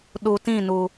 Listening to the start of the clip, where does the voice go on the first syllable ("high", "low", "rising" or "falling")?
low